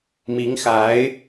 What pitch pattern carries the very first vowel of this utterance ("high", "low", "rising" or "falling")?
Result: rising